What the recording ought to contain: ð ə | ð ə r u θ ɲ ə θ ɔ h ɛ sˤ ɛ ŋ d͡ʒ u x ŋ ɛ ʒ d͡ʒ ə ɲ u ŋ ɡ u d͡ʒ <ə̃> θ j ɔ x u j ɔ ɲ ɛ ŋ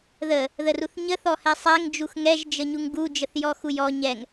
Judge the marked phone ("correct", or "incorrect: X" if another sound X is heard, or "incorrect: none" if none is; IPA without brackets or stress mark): incorrect: ə